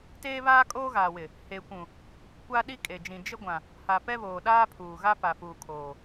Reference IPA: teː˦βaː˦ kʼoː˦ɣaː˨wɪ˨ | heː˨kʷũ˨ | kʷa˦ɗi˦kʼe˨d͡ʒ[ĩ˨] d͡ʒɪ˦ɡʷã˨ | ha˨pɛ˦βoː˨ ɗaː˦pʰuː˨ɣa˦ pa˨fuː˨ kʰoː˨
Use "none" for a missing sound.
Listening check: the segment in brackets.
ĩ˨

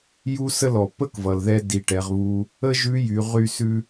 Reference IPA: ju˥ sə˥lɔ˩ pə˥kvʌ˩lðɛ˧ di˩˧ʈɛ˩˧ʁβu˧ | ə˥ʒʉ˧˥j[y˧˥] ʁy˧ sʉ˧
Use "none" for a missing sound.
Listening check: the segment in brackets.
y˩˧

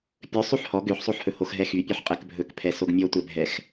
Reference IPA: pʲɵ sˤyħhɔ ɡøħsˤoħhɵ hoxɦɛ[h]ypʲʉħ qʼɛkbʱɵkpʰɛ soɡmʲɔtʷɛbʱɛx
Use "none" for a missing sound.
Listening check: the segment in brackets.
x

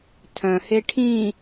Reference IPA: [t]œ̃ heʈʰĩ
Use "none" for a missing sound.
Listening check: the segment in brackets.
tʰ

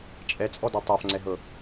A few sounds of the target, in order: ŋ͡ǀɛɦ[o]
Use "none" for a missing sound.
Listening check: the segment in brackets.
ɤ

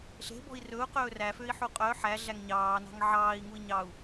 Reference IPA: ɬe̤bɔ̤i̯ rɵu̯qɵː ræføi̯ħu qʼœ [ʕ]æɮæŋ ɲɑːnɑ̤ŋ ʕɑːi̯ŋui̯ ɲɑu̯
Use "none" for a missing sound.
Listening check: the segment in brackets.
ħ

